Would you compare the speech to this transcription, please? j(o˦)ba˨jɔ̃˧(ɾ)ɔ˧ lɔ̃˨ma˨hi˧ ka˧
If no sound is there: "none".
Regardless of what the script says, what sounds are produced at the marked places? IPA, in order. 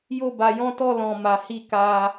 o˧, t

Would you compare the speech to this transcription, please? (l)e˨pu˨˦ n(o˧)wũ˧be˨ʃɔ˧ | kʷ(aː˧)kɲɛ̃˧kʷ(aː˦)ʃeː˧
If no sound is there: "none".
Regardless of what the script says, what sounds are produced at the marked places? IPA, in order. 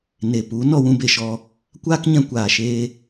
n, ɔ˧, aː˦, aː˨

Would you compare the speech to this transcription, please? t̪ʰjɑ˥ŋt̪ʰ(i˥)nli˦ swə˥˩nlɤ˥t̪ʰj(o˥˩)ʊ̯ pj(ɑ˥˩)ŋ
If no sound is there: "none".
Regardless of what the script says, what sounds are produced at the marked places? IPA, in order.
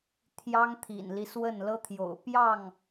ḭ˨˩, o̰˨˩, ɑ˥˩

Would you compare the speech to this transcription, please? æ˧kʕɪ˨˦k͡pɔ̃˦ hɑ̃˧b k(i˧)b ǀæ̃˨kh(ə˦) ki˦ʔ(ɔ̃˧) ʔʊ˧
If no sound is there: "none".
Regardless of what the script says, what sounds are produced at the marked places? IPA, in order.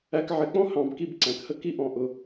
i˧, ə˦, ɔ̃˧

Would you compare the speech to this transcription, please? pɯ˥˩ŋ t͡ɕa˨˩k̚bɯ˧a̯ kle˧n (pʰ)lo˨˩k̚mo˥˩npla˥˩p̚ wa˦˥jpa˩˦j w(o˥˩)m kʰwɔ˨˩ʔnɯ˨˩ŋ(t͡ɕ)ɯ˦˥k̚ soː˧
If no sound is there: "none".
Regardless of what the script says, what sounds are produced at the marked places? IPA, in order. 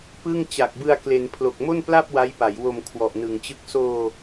pʰ, o˨˩, t͡ɕ

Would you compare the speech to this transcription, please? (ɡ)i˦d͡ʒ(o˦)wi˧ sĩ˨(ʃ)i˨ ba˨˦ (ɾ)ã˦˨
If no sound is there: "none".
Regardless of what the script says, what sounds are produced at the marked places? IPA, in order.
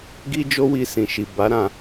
ɡ, o˦, ʃ, ɾ

